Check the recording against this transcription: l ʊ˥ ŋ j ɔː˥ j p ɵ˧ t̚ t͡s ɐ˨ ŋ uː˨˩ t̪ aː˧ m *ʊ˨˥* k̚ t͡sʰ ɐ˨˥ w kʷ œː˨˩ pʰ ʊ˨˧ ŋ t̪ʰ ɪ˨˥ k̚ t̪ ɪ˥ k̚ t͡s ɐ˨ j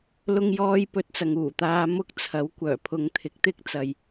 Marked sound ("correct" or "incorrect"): incorrect